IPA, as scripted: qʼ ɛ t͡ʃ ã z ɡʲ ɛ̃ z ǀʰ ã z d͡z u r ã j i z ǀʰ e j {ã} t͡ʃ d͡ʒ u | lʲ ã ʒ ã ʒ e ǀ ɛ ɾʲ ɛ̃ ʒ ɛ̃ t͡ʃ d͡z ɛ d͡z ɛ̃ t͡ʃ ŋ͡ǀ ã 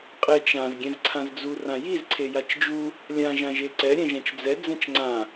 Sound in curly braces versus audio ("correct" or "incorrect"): incorrect